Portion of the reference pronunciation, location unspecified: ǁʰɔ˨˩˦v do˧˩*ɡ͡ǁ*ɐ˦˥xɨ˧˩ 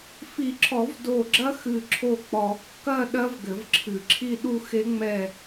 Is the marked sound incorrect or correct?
correct